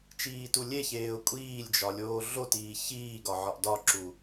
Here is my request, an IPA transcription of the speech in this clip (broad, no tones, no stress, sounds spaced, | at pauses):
t͡ʃ iː t u lʲ e ç eː ʊ̯ kʷʼ iː lʲ d͡ʒ ɒ lʲ oː ɮ o t iː ç iː ɡ ɒ ʕ ɒ ʔ d ɒ ǁ u